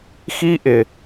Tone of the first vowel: high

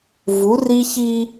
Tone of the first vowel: rising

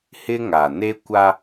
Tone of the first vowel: high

